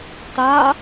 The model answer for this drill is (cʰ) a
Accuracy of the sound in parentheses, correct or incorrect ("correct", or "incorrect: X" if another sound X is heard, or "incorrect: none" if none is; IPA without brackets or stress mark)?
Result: incorrect: t